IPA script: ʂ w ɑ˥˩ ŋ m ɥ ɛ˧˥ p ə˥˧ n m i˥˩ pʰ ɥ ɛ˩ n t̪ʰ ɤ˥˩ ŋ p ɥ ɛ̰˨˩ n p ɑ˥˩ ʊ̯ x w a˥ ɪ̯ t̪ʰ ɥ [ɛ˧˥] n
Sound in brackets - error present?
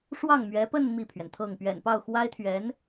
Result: no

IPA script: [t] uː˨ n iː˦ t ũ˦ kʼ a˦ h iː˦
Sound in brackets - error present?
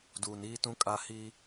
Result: yes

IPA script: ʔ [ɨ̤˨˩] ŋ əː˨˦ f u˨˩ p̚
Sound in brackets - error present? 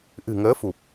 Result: no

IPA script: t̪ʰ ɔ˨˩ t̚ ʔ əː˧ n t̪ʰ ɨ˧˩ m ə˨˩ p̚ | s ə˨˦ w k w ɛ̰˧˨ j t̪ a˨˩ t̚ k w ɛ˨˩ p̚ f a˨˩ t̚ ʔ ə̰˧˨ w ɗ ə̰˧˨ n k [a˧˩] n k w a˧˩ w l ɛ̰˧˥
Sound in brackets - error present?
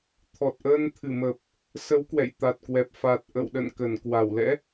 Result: yes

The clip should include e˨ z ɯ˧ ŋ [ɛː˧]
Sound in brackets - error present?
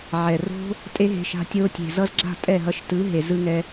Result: yes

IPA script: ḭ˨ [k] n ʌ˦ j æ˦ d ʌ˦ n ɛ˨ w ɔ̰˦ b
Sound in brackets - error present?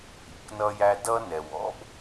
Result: no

